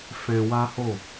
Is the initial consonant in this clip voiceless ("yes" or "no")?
yes